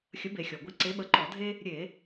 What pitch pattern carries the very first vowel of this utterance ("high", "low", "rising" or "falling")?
rising